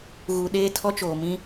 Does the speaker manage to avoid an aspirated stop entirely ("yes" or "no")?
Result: no